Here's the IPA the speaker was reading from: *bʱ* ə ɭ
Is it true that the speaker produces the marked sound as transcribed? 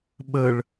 no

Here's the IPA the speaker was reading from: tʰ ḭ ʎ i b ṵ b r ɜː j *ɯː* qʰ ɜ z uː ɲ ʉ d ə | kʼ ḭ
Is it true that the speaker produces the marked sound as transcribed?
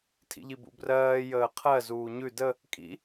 no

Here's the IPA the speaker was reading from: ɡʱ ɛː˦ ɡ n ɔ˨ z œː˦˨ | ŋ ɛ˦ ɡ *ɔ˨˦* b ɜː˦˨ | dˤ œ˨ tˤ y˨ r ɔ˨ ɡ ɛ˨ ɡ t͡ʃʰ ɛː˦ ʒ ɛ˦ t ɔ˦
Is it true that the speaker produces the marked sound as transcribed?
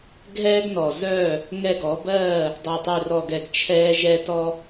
yes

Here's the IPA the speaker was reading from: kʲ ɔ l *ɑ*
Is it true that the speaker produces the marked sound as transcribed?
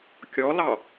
yes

